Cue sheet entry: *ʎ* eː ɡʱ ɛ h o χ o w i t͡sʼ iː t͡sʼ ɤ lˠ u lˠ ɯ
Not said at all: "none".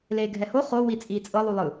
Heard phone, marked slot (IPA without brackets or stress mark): l